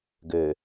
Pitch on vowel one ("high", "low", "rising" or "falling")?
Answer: low